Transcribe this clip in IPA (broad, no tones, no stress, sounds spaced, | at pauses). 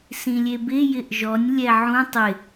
s ĩ lʲ e b ɪ j ɪ ʔ ʒ ɔ nʲ lʲ ɛ ʕ ũ tˤ ɪ